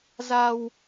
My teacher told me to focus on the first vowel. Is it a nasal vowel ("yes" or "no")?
no